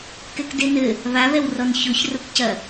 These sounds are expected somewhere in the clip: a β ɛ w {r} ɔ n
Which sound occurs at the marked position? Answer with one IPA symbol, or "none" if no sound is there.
r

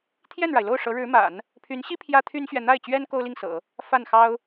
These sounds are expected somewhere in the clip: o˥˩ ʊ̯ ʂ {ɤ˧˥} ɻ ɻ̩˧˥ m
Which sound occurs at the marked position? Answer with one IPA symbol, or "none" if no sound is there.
ɤ˧˥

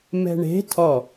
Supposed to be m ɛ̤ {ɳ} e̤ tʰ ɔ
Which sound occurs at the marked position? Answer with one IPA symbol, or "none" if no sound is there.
ɳ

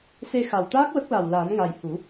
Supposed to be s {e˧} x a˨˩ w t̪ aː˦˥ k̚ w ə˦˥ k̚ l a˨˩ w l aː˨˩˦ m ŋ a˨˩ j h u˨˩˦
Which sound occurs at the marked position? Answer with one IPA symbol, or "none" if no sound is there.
e˧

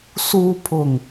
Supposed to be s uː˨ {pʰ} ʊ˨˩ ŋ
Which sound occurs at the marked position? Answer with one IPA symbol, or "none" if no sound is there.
pʰ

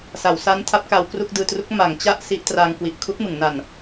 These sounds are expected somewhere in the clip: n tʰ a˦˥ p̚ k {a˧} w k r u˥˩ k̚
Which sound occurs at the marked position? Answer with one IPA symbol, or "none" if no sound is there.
a˧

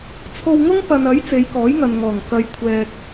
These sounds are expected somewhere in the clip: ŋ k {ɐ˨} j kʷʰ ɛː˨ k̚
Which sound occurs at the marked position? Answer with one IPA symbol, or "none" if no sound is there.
ɐ˨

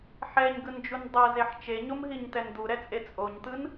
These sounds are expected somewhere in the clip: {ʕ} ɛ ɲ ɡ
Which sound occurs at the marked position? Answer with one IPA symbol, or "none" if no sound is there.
ħ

